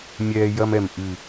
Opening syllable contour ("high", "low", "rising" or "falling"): high